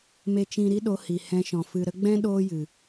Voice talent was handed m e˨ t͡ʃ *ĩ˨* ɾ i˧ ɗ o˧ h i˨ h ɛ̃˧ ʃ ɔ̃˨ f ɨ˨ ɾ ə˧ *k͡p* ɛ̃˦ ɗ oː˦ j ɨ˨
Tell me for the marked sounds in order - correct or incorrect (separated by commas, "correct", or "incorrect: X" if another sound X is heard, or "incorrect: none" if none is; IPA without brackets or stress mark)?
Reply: correct, incorrect: ɡ͡b